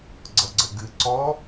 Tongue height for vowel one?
mid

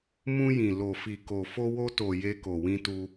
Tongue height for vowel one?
high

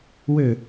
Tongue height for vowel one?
mid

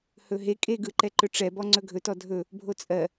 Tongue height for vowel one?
mid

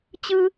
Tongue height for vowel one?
high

